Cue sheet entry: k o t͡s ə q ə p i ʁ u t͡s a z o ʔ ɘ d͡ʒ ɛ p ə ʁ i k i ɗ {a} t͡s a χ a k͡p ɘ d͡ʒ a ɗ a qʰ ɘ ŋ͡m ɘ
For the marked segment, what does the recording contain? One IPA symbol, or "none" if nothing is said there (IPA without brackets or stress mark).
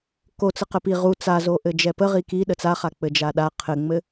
ə